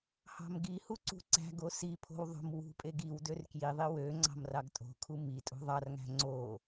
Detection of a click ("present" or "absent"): present